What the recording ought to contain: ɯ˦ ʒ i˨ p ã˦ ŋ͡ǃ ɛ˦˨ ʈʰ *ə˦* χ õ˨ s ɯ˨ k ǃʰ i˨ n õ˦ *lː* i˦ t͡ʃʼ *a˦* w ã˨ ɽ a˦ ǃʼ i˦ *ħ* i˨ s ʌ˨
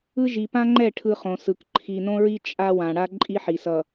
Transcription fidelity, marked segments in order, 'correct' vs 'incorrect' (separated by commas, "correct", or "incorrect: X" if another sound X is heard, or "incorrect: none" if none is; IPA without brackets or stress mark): incorrect: ɯ˦, incorrect: ɹ, correct, correct